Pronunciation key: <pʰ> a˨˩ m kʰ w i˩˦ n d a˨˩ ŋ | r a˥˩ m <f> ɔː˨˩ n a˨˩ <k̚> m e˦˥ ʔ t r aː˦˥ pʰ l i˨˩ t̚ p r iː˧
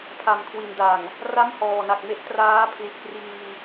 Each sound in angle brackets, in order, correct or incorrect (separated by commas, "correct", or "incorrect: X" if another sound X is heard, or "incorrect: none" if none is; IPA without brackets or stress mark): correct, incorrect: h, correct